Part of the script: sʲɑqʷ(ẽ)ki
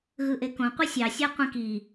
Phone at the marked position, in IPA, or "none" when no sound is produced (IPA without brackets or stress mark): ĩ